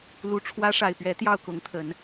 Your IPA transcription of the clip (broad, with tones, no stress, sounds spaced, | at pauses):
l u˨˩ ʈ͡ʂʰ w ä˥ ʂ a˨˩ ɪ̯ p ɥ ɛ˧˥ t̪ j ɑ˥˩ ʊ̯ k ʊ˧˥ ŋ t̪ʰ ə˨˩˦ n